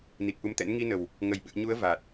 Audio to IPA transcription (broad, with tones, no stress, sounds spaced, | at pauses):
n i˨˩ k̚ ʔ u˨˦ m t̪ ɛ̰˧˥ n ŋ i˧ n ə˨˩ w | ŋ ə˧˩ j ɓ ɨ̰˧˨ ə̯ ɲ u˨˦ ə̯ v a˨˩ t̚